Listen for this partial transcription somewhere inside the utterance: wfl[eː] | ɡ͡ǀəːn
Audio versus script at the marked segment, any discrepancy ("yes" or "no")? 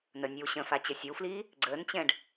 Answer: yes